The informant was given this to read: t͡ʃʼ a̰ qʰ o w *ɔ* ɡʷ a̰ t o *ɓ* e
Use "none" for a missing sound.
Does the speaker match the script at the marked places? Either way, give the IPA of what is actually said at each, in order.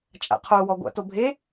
ɔ, bʱ

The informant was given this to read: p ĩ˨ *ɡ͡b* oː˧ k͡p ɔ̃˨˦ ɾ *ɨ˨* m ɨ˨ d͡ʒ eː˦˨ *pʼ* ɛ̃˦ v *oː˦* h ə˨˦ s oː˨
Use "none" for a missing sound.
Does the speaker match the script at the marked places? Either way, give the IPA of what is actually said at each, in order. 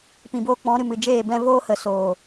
b, ɨ˨, b, oː˦

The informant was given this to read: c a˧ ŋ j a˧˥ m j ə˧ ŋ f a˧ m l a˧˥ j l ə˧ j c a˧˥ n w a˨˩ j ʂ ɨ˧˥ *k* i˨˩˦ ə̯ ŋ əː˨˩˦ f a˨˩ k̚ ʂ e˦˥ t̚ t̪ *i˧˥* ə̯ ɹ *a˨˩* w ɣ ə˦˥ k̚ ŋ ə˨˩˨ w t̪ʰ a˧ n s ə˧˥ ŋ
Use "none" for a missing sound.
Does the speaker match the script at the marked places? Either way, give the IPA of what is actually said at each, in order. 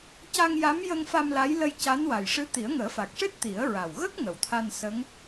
t̪, i˨˩˦, a˨˩

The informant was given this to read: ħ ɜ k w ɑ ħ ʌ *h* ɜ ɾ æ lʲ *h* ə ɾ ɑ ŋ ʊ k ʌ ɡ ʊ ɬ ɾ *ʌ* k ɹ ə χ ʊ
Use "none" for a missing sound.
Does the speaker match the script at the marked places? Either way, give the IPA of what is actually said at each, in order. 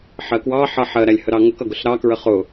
ħ, h, ɑ

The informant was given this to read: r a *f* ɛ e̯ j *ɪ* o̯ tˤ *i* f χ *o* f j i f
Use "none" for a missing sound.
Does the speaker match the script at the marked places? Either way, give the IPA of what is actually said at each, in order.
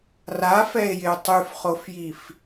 f, ɪ, y, o

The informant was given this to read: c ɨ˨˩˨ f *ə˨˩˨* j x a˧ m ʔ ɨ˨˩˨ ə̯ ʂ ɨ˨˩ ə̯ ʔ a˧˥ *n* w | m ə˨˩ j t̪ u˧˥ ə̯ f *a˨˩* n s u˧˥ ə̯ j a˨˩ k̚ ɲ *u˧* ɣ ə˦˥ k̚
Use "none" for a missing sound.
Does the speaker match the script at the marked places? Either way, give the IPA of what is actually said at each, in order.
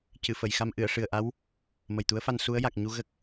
ə˨˩˨, none, a˧, u˧

